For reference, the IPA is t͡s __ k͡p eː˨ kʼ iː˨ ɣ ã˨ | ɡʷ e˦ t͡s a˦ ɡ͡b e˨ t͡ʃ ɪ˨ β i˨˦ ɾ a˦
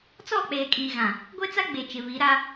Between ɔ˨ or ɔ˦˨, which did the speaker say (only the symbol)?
ɔ˦˨